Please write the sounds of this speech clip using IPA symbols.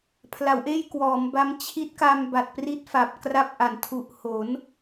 pʰ l a˩˦ w ʔ eː˥˩ j k w ɔː˩˦ m b a˦˥ m t͡ɕʰ i˦˥ t̚ k a˧ m b a˨˩ t̚ p r i˦˥ t̚ f a˨˩ p̚ k r a˦˥ p̚ ʔ a˨˩ n tʰ u˨˩ ʔ h o˩˦ n

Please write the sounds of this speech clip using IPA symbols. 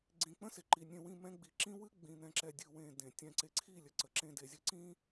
ɡ͡ǀ ĩ˨ k͡p ə̃˦ s e˨ ǃ i˨ nʲ ẽ˨ w ĩ˨ m ɛ̃˦ ɡ͡b i˨ ǁ ĩ˦ w ɨ˦ ɡ͡b ĩ˨ n̪ ɛ̃˨ ǁ ɛ˨ dʲ ɨ˨ w ẽ˨ d ẽ˨ tʲ ɛ̃˨ ǀ e˨ ǀʰ i˦˨ lʲ ə˨ ǀ ə˨ ǁ ẽ˦ d e˨ zʲ ɨ˦ ǀ ĩ˦

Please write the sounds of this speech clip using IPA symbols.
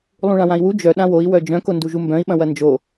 lˠ ũ ɭ ã w ã i̯ w u d͡ʒ œ ɗ ã w o i̯ w œ d͡ʒ œ̃ k o n d u ʒ u m b œ̃ i̯ ɓ ɐ̃ w ɐ n d͡ʒ o

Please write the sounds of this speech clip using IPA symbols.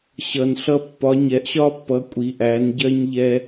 ɕ ʌ˨ n ɬ ʌ˦ pː ɒ˨˦ ɲ ɛ˨˦ ʔ ɕ ɒ˦ pː ʌ˨˦ kʷʼ i˨˦ ʔ æ˨˦ n ɟ ɜ˦ ɲ ʎ ɛ˦

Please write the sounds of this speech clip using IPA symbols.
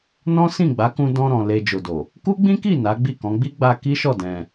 n ɔ̃˦ s ĩ˦˨ ɡ͡b a˨˦ k ũ˧ d ɔ̃˧ ɾ ɔ̃˨ l e˧ d͡ʒ o˨ d o˨ | k u˦ ɡ͡b ĩ˦ k i˦˨ n a˨˦ ɡ͡b i˦˨ k ɔ̃˨˦ ɡ͡b i˦ ɡ͡b a˧ k i˦ ʃ ɔ˦˨ d ɛ̃˧

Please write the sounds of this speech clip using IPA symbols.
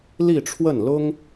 l i˥˧ ʈ͡ʂʰ w ə˥˩ n l ʊ˥ ŋ

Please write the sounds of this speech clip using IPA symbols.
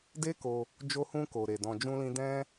d e˦ k o˧ | d͡ʒ o˧ h ũ˧ k o˨ ɾ e˨ d ɔ̃˧ d͡ʒ ũ˦ l ĩ˦ d ɛ̃˦

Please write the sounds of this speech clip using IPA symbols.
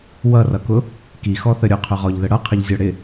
w ʌ r ʌ k ʊ | k i x ɔ θ ə ɾʲ ʊ qʰ ʊ ʁ ɔ ʎ ð ə ɽ ʌ qʰ ə ʎ zʲ ɔ ɽ ɪ

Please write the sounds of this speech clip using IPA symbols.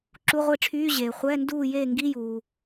ǁ u˧˥˧ ʁʷ i˥˩ ʈ͡ʂʰ yː˧˥˧ ʑ eː˩ χʷ ɛː˧˥˧ n d uː˥˩ j eː˥˩ ŋ ɡ i˧˥˧ j uː˩

